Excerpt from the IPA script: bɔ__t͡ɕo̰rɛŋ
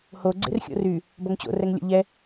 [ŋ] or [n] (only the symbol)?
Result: ŋ